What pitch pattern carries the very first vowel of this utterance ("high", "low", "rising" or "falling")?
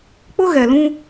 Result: high